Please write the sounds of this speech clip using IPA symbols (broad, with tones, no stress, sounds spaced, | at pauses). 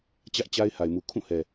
t͡ɕ ä˦ ʔ t͡ɕ a˦ ɪ̯ h a˨ ɪ̯ m u˨ kʰ ũ˦˨ h ɛ˨